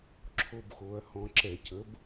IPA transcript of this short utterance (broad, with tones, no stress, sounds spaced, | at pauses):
ǁʰ o˦ b x o˨˥ ɐ̯ h ɔ̃˦ ǁ ɛ˧˩˧ c ə˨˥ b